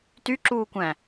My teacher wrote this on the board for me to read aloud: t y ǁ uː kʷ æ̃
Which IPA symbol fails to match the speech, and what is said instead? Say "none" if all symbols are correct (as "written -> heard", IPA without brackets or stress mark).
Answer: none